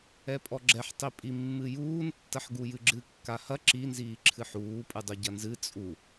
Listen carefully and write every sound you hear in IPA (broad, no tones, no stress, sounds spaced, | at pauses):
ɛ pʼ ɔ ɡ͡ǁ ɛ ħ tˤ i pʼ i mː ɨ j uː n tː ɐ ħ ɡ u j ɨ ɡ͡ǁ ɨ kː a h ɐ ǁ i n z iː ǁʰ ɨ ħ uː pʼ ɨ dˤ u ɟ ɐ n z ɨ t͡sʼ u